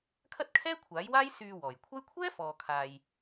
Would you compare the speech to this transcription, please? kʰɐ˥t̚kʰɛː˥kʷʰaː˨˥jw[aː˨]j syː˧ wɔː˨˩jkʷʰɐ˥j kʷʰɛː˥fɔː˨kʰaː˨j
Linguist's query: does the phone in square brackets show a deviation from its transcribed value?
yes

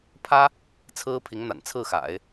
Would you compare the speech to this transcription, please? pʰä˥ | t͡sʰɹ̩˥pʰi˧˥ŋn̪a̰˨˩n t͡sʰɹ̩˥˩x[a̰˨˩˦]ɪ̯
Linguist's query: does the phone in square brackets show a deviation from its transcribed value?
no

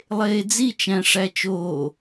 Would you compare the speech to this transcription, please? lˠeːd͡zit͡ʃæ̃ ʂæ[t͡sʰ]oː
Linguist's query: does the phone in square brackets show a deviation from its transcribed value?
yes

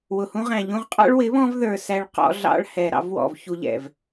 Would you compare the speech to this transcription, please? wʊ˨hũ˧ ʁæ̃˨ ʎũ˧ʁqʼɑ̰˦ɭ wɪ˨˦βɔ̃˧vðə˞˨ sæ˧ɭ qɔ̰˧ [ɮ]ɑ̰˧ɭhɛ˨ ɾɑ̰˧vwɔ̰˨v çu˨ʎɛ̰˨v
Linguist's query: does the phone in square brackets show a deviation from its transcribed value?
no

